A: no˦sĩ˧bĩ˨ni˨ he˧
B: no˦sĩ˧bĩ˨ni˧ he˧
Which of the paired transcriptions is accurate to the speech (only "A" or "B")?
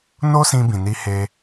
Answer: B